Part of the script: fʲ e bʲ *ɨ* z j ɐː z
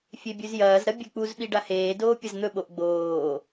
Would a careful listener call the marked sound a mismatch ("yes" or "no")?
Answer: yes